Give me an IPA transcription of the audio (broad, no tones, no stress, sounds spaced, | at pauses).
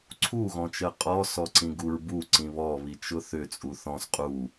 ǀʰ u ɣ ɔ̃ t͡ʃ ɜ qʼ ɔ s ɔ ǀ ĩ ɡ u ɹ b u ǀ ĩ β ɔ β i t͡ʃ ʊ θ ʏ t͡sʼ u θ ɔ̃ s qʼ u